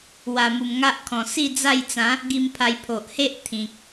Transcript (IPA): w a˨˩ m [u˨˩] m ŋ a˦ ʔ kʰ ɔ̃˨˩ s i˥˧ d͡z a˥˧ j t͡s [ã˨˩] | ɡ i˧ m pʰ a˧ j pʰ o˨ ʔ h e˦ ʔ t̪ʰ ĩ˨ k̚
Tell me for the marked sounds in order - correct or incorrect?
correct, incorrect: ã˨˦

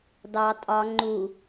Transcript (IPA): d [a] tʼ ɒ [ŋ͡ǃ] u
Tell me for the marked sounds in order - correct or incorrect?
incorrect: ɑ, correct

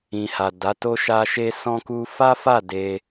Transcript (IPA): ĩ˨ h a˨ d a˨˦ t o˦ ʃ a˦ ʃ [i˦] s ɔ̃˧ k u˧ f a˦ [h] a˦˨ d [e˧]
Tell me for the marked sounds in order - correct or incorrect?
incorrect: e˦, incorrect: f, correct

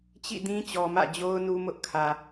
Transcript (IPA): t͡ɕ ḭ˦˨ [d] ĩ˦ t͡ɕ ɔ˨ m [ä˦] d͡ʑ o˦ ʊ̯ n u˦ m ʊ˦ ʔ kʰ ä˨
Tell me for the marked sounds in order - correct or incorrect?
correct, incorrect: ä̰˦˨

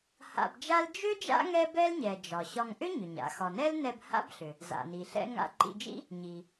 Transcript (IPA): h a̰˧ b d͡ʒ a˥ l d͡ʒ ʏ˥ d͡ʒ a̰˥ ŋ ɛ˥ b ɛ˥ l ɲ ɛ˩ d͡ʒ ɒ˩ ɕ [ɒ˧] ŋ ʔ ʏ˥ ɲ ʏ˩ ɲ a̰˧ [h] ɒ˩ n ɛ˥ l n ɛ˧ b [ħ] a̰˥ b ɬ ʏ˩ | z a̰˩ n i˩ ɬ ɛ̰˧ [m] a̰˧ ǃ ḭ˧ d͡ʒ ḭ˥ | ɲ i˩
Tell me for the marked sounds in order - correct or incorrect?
correct, incorrect: x, incorrect: h, incorrect: ŋ

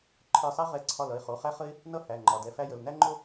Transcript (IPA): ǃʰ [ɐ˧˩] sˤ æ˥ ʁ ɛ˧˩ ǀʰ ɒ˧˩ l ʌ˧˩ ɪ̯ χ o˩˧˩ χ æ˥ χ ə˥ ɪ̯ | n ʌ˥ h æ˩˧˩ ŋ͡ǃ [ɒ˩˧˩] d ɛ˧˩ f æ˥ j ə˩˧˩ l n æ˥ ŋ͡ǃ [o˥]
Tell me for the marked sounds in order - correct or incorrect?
incorrect: ə˞˧˩, correct, correct

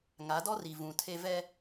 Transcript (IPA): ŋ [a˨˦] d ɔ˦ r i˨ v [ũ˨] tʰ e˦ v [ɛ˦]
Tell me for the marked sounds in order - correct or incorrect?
correct, correct, correct

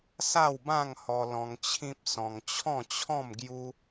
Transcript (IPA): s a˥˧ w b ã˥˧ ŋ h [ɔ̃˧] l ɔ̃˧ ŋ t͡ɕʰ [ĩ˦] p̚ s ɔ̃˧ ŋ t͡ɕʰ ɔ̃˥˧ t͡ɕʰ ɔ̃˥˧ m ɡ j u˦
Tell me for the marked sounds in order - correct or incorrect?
incorrect: ɔ˧, correct

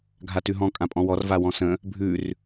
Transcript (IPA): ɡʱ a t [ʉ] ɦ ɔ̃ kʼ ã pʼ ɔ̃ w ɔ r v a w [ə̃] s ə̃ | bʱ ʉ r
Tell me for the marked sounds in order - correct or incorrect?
correct, incorrect: ɔ̃

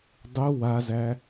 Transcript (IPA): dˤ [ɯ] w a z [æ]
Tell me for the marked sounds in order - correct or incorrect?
incorrect: u, correct

